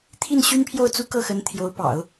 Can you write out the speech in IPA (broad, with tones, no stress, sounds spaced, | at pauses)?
t̪ʰ i˥˩ n ɕ y˥ n pʰ j o˥˩ ʊ̯ t͡s u˥ k ɤ˥˩ x ə˧˥ n t̪ʰ j o˧˥ ʊ̯ p ɑ̰˨˩˦ ʊ̯